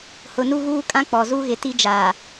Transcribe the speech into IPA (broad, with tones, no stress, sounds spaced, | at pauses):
h ʊ˨ n u˦ ɣ uː˦ kʼ ã˦ k͡p ɔ˨ z u˦ ɣ ɪ˨ t i˦ d͡ʒ aː˨